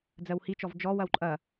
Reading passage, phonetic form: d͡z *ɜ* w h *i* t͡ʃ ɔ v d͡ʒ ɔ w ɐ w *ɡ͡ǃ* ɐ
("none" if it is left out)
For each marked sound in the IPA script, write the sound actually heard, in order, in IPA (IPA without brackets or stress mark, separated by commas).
ɜ, i, ǃʼ